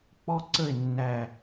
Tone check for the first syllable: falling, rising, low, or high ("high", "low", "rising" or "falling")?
falling